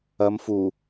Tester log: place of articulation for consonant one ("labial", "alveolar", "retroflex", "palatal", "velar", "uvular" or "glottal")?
labial